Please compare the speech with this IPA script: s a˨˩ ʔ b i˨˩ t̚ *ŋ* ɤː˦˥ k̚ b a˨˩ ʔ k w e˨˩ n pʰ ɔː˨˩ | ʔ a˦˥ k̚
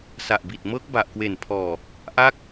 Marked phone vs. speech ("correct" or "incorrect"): incorrect